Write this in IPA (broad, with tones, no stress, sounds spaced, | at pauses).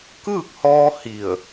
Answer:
k ɯː˥˨ k̚ h ɔː˧ h i˧˩ ə̯